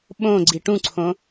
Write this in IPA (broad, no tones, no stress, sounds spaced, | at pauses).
ɓ õ ɡ͡ǀ i ʈ ũ ǀʰ õ